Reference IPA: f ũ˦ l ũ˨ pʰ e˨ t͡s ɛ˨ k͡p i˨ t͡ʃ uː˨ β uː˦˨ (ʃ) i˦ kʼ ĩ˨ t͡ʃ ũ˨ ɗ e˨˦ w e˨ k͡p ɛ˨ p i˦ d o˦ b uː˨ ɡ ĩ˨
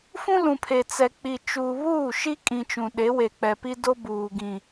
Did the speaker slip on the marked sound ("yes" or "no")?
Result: no